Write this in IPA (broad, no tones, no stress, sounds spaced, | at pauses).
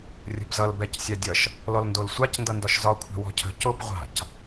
rʲ ə̤ b z ʌ l b ɛ c sʲ a dʲ ʌ ʃ | l ɔ l n d o l sʷ a c n d ʌ n d ɒ ʃ z ɒ kʷʰ ɛ̤ w ɔ̤ cʰ ə̤ c o b ʁʷ a̤ c